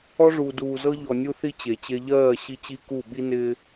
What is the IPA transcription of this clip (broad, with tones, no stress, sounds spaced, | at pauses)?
ɔ˦ ʐ uː˨ d uː˨ z ɤ˦ ʎ ɔ˨ nʲ u˦ θ i˦ t͡ɕ e˨ t͡ɕ e˦ ʎ ɜː˦˨ ɕ i˦ t͡ɕ i˦ k u˦˨ ɓ i˦ n ɪː˦